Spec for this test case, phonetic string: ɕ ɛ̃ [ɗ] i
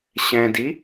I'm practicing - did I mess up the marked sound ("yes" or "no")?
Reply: yes